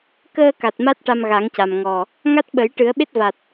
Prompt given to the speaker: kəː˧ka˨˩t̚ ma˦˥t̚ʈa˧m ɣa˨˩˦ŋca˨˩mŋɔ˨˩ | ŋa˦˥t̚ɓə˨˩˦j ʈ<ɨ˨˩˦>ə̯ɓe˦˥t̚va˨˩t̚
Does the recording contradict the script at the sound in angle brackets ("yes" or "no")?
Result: no